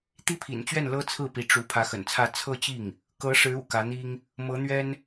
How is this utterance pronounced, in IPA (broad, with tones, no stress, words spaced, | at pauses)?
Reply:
t̪i˥pʰḭ˨˩nt͡ɕɥɛ˥˩n lɤ˥t͡sʰɹ̩˥˩pi˧˥ ʈ͡ʂu˧˥ pʰä˧˥xə̰˨˩nt͡sʰä˥˧ t͡sʰɤ˥˧t͡ɕi˥˩ŋ | kɤ˧˥ʂɻ̩˧˥ ṵ˨˩kä˧˥n̪i˥ŋ | mɤ˧˥n̪ɥɛ˥n